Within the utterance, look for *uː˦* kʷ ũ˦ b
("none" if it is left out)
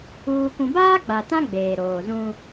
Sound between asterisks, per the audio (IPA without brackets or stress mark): uː˦